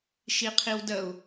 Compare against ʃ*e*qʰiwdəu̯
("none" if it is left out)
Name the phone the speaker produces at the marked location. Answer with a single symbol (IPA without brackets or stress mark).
i